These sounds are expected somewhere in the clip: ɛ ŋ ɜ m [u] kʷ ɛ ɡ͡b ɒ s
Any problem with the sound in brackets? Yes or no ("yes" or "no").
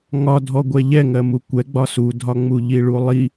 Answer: no